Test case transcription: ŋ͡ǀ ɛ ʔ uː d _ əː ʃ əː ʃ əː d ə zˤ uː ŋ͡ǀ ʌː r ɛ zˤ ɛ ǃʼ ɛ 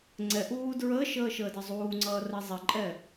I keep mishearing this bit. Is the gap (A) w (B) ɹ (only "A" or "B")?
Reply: B